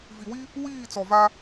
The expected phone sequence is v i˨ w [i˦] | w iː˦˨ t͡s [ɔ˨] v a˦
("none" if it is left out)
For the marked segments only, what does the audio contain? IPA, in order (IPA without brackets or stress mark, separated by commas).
i˦, ɔ˨